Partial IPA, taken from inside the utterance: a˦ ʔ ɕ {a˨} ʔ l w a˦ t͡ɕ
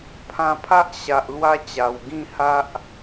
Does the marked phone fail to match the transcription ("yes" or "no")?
no